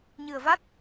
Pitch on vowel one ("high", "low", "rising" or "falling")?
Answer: low